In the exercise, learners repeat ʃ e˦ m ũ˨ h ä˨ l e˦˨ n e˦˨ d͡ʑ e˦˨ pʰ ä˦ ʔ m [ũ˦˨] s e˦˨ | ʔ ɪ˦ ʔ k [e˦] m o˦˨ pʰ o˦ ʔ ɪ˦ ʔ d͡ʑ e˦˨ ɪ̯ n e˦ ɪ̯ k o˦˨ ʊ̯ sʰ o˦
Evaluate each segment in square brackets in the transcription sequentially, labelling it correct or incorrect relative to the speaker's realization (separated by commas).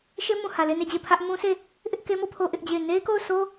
incorrect, correct